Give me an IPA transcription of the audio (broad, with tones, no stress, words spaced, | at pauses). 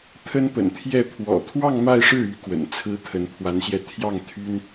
t̪ʰə˥npə̰˨˩nt̪ʰjɛ˥˩ pʰwɔ̰˨˩t̪ʰwɑ˥˧ŋ ma˥˧ɪ̯ʂɻ̩˥˩y˧˥ kwə̰˨˩nt͡sʰɹ̩˥t̪ʰə˧˥n pʰwa˧˥nɕjɛ˧ t̪ʰjɑ˥˩ŋ t̪ʰy˥n